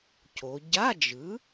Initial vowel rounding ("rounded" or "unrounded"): rounded